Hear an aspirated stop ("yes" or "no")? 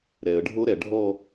no